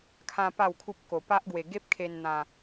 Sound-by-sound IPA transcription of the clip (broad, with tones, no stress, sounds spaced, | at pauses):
kʰ ã˧ p a˥˧ w kʰ u˦ p̚ k o˧ p a˦ ʔ ɡ w e˧ ɡ e˦ p̚ kʰ e˧ n n̪ ã˧